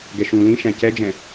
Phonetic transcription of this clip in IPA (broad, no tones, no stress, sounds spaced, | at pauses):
ɡ ɛ ʃ ũ l ĩ ʃ æ̃ c ɛ d͡ʒ ɛ̃